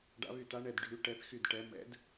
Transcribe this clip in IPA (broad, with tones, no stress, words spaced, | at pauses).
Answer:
ɖa̰˨˦βy˧˩ ta˨˦ɳɛ˧˩d ɖʱy˨˦ ʈɛ˨˦θxy˧˩d ʈɛ˨˦ mɛ̰˨˦d